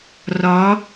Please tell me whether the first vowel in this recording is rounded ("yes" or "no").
yes